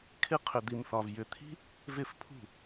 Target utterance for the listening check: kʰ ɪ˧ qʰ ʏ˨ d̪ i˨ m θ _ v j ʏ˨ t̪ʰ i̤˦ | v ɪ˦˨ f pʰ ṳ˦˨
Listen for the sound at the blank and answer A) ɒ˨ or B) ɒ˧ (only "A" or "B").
A